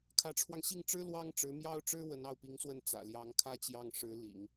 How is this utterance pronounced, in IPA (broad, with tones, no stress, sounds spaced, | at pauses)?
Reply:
kʰ ä˧˥ ʈ͡ʂʰ w ɑ˧ ŋ ɕ i˥˩ ŋ ʈ͡ʂ ɻ̩˥ l w ɑ˥ ŋ ʈ͡ʂ ɻ̩˧˥ m j ɑ˥ ʊ̯ ʈ͡ʂ ɻ̩˥ w ə˧˥ n ɑ˥˩ ʊ̯ p i˧˥ ŋ s w ə˥˩ n t͡s ä̰˨˩ l j ɑ˧˥ ŋ kʰ ä˥ t͡ɕ j ɑ˥˩ ŋ ʂ ɻ̩˧˥ l ḭ˨˩˦ ŋ